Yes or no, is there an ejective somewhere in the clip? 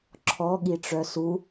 no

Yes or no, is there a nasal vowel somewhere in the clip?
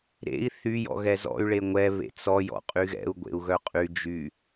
no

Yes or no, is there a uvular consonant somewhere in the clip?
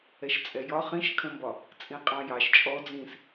yes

